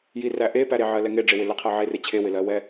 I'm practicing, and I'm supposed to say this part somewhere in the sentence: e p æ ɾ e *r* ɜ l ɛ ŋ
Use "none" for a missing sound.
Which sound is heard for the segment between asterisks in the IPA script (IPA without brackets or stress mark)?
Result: ʕ